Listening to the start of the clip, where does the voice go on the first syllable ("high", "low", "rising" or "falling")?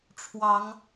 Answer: rising